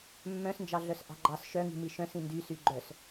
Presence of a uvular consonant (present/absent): absent